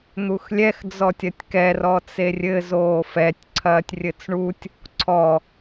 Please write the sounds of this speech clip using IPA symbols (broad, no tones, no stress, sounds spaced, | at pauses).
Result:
n̪ u x lʲ ɛ x d͡z ɔ tʲ ɐ tʲ k ɛ r ɔ t͡s e rʲ ɘ z oː f ɛ tʲ ǀʰ ɐː tʲ rʲ ɘ t͡s ɳ u tʲ | ǀʰ ɔ